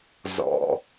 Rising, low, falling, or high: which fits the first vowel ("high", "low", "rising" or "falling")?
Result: low